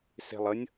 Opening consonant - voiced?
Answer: no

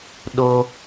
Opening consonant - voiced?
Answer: yes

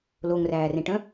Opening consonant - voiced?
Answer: yes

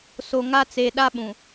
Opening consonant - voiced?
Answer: no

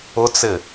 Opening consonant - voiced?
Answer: no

